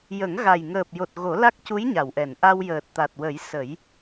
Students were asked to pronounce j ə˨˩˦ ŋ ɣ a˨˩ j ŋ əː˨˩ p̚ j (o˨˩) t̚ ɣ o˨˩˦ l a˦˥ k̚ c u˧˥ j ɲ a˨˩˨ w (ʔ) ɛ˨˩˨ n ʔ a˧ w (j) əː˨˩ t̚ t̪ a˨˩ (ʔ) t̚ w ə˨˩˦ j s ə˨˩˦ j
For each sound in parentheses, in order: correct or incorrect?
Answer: correct, correct, correct, incorrect

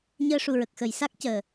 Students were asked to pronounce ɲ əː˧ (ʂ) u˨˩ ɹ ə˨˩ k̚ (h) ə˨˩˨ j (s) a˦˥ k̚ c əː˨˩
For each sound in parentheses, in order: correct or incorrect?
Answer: correct, incorrect, correct

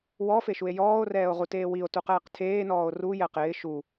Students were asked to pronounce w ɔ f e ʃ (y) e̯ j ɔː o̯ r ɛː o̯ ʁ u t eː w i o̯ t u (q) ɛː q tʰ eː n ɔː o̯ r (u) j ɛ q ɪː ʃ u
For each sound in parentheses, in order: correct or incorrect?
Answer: incorrect, correct, correct

